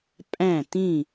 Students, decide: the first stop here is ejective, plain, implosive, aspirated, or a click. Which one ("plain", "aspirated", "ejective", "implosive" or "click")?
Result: ejective